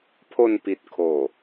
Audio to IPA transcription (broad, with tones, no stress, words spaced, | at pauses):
pʰo˧npi˨˩t̚kʰoː˨˩